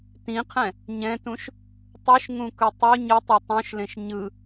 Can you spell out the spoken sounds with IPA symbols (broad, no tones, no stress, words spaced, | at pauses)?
tĩqʰɛ̃ | ɲɛ̃tũʃ | tˤɯʃŋũkɯ tˤu ɲɯtˤe tˤõʃlẽʃ ɲɯ